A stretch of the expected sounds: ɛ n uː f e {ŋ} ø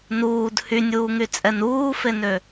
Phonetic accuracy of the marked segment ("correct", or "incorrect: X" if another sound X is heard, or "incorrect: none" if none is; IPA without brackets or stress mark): incorrect: n